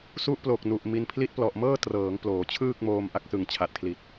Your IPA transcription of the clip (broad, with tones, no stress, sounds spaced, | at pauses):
s u˦˥ ʔ p l o˨˩ k̚ n u˨˩ ʔ m i˧ n pʰ l i˦˥ t̚ p l ɔ˨˩ ʔ m ɤː˥˩ t r ɤː˩˦ ŋ p l oː˩˦ t͡ɕʰ ɯː˥˩ k̚ m oː˧ m ʔ a˦˥ k̚ s ɯ˨˩ ŋ t͡ɕʰ a˨˩ t̚ kʰ l i˨˩ t̚